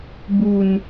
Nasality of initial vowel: oral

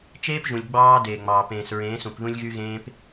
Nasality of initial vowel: oral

